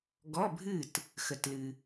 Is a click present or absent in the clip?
absent